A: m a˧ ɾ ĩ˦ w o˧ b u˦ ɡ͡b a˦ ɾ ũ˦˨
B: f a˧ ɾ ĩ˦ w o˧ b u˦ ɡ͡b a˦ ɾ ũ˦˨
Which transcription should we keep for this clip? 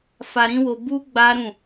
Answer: B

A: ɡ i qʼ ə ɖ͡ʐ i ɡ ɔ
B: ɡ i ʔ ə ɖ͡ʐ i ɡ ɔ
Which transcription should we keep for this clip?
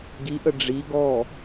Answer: B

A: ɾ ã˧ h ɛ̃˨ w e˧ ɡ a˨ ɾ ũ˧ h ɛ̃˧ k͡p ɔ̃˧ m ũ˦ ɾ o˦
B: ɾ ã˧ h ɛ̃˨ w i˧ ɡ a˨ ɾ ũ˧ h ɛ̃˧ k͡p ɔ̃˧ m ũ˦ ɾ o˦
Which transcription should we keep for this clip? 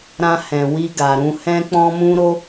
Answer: B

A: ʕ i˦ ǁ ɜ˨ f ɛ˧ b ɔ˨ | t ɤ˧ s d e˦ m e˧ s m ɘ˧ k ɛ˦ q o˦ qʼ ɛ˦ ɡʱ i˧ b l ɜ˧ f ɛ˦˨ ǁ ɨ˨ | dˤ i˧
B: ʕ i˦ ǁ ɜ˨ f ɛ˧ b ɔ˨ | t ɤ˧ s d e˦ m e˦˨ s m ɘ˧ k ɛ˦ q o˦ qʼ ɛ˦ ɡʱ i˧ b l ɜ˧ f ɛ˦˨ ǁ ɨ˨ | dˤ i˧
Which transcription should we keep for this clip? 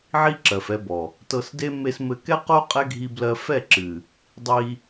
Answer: A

